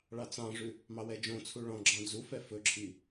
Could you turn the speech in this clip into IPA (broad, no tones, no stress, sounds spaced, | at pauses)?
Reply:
ɭ ɑ t͡s ɑ̃ ʐ ʉ | m ɑ w ɛ d͡ʒ õ t͡sʰ u ɭ ɔ̃ ɡ͡ǁ ɑ̃ d͡z u f ɛ f ɵ ǁʰ i